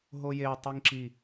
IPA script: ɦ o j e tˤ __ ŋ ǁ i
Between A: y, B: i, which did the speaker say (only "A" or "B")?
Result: B